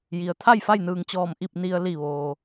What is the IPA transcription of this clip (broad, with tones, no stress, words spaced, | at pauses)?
ji˩ə̯ t̪ʰa˥˨jfa˥˨jnɯː˧˩ŋt͡ɕɔː˧˩m ʔi˥˨p̚ni˧ə̯ li˧˩ʋoː˩